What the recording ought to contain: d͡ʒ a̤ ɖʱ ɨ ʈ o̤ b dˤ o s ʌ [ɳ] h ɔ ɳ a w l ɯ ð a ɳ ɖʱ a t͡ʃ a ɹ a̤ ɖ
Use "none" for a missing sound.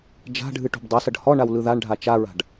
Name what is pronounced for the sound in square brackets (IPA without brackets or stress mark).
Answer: ɖ